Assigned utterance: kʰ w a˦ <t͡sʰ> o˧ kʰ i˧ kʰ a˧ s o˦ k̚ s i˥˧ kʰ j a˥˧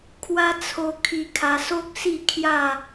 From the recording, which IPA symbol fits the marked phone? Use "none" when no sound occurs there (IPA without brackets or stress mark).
t͡sʰ